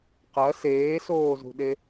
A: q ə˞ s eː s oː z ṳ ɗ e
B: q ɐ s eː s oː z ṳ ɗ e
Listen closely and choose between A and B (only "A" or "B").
B